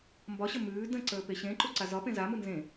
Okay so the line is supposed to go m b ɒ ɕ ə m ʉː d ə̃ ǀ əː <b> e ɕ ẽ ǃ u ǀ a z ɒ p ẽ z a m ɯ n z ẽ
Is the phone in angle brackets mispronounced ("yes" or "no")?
yes